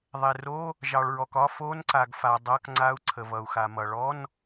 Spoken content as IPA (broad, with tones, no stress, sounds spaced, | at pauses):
ðˤ e˩ r o˧˥˧ | ʒ ɑ˩ ɭ ɹ ɔ˩ k ɒ˧˥˧ f o˧˥˧ n ǀ a˩ ɡ f a˩ dˤ ʌ˧˥˧ k ŋ͡ǀ a˧˥˧ u̯ ǀʰ ə˩ v ʌ˩ u̯ x a˩ m ʌ˩ ɭ ɔ˧˥˧ n